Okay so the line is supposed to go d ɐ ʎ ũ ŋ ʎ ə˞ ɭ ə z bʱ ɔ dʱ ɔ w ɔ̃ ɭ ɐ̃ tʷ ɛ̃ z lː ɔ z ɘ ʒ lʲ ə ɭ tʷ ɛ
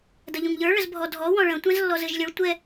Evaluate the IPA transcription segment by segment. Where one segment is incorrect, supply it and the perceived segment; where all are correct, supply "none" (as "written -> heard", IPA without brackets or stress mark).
none